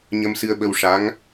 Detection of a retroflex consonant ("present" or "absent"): present